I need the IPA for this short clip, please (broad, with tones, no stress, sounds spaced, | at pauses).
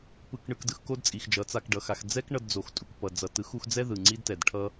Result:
p ɯ˨ k ɳ ɯ˨ k d ɯ˨ x k o˦ d t͡sʼ i˨ x d͡ʒ ʌ˨˦ t͡s a˧ k ɖ ʌ˨ x a˧ x d͡z ɛ˦ k ɳ ʌ˧ d d͡z o˨ x tʼ u˨ k p ʌ˨ d͡z ʌ˨ t ɯ˨˦ x u˧ x d͡z ɛ˦ ð ɯ˨ ŋ͡ǀ i˦ d t ɛ˨ d ʈʰ ʌ˦